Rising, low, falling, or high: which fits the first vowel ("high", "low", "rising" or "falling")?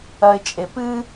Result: low